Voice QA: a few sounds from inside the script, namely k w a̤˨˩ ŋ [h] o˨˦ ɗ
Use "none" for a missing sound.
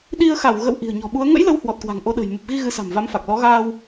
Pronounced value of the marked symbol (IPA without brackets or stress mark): ʔ